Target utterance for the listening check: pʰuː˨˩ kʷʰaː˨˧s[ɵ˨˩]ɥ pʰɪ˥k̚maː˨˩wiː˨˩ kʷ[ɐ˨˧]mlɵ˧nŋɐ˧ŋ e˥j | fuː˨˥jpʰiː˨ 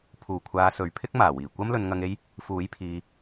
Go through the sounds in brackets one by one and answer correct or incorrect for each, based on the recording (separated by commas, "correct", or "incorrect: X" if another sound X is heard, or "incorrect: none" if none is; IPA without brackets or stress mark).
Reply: incorrect: ɵ˨, incorrect: ɐ˥